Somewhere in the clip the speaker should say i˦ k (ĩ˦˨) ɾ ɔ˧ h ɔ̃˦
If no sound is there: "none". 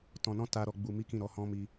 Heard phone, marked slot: ĩ˦˨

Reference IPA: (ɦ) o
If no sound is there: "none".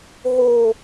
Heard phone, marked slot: ɦ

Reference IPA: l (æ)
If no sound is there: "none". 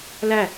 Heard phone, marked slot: æ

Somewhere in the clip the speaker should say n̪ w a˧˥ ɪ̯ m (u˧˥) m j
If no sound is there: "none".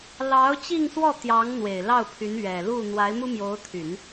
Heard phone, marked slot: u˥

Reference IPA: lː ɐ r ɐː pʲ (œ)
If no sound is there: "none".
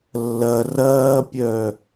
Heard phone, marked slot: œ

